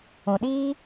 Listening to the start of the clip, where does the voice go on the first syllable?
low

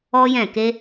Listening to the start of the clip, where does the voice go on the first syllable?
high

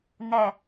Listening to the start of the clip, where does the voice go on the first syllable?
low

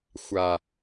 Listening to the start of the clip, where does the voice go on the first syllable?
low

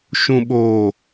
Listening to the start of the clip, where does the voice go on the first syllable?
low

